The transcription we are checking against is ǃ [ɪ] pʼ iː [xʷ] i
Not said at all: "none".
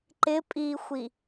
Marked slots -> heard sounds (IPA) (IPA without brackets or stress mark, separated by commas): ɪ, xʷ